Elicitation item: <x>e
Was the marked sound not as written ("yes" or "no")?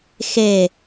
no